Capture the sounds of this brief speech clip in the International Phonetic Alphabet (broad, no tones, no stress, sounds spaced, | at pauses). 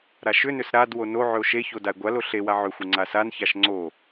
ɾ a ʃ ʏ n ʏ s ɾ a d w o n o ʕ ʏ o̯ ʃ e ç o d a e̯ ɡʷ a l o ɬ e w a ʕ ʏ xʷ e ŋ͡ǀ a s a n ç a ʃ ŋ͡ǀ o